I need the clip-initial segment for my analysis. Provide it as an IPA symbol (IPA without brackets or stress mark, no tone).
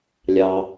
lʲ